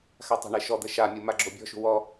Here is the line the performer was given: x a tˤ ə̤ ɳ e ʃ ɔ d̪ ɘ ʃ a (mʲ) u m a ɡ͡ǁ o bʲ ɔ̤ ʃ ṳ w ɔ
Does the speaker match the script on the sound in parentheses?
yes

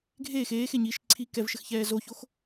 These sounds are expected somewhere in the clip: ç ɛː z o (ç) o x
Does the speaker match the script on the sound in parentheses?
yes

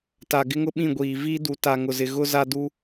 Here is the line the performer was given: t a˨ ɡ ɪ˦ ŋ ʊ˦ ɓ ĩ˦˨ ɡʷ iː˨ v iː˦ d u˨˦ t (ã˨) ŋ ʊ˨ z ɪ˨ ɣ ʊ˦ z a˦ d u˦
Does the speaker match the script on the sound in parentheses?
no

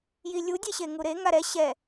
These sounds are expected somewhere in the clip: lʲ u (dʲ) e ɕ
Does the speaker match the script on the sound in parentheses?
yes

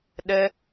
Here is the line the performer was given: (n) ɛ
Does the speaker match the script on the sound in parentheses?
no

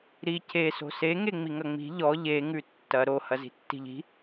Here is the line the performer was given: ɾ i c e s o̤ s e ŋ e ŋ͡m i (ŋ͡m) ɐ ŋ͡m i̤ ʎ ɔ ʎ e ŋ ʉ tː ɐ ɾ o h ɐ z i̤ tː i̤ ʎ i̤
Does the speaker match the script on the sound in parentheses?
no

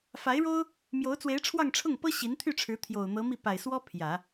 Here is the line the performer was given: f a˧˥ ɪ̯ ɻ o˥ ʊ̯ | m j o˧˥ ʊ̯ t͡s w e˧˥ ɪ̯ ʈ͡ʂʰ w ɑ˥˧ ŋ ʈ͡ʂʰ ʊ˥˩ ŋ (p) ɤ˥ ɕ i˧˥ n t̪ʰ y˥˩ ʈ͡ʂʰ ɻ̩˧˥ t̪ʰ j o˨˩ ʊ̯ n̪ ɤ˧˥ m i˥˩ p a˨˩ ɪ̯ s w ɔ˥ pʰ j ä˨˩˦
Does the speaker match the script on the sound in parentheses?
yes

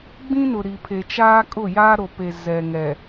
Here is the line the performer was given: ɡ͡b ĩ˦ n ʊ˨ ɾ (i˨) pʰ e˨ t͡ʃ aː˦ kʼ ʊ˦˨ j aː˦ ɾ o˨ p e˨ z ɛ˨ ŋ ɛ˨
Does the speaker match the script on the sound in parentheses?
yes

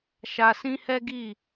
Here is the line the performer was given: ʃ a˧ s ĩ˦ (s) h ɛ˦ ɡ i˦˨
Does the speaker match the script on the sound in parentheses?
no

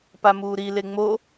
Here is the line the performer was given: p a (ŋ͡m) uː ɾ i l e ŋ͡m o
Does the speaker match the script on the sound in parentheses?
no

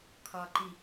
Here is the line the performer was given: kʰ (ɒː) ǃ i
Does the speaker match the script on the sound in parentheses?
yes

